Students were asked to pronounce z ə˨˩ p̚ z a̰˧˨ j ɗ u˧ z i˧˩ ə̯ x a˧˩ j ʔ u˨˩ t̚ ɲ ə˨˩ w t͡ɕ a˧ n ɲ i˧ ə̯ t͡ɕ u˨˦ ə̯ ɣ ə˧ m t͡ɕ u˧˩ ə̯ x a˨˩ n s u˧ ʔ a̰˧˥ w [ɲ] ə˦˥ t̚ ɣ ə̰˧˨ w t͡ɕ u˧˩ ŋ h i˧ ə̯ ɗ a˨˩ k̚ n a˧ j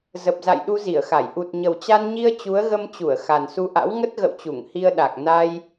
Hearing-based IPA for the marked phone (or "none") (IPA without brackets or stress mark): ŋ